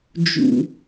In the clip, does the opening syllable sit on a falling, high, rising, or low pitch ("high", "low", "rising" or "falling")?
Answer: low